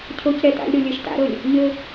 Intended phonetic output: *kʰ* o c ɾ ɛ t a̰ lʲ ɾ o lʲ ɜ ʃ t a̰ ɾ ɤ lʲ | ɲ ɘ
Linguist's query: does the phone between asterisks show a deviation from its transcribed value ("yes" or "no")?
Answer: yes